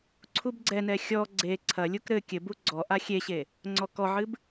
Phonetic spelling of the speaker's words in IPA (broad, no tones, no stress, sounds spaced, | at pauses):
ǀʰ u b ɡ͡ǀ ɛ n ɛ xʲ ɔ ɡ͡ǀ e ǀʰ ɐ lʲ u k ɾ ɘ kʲ ɘ b u ɡ͡ǀ ɔ ʔ a xʲ e ɕ e | ŋ͡ǀ ɔ k ɔ ʕ ɨ b